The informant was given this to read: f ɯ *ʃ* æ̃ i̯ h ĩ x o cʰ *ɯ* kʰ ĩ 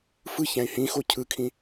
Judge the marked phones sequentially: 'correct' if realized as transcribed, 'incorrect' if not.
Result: incorrect: ç, correct

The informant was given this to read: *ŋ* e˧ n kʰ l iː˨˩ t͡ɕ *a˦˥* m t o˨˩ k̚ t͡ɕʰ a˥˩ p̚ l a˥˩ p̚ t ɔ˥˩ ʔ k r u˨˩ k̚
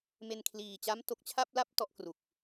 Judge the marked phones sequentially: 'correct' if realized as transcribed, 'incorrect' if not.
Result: incorrect: m, correct

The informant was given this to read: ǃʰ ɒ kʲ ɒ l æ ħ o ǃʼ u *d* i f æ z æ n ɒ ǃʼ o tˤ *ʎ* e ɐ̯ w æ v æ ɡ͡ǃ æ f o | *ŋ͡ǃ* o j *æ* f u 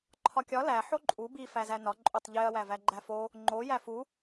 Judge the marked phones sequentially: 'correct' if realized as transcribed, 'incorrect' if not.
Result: incorrect: b, correct, correct, correct

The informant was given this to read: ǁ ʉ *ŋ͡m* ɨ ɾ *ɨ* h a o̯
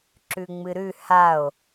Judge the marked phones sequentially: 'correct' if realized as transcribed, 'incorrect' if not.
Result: correct, incorrect: ʉ

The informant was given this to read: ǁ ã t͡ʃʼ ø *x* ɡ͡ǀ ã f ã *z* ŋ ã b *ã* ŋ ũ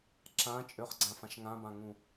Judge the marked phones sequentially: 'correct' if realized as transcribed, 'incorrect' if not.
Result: incorrect: χ, incorrect: ʃ, correct

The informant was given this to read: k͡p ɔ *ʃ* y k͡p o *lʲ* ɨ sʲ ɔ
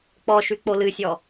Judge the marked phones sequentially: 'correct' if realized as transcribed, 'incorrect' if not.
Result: correct, incorrect: l

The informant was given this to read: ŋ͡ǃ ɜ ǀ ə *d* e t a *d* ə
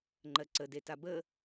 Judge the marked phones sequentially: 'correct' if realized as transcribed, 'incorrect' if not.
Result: correct, incorrect: b

